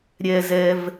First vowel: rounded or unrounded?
unrounded